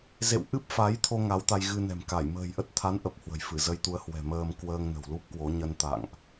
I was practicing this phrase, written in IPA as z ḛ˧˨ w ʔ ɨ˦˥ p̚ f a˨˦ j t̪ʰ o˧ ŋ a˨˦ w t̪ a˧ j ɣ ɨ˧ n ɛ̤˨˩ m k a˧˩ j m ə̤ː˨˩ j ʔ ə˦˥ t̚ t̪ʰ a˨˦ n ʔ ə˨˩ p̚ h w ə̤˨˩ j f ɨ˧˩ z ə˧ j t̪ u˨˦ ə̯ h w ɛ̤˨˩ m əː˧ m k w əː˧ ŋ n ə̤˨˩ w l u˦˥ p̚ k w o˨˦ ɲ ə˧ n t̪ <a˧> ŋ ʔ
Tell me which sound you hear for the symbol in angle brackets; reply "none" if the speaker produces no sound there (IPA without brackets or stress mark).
a̰˧˨